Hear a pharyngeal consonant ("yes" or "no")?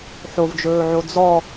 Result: yes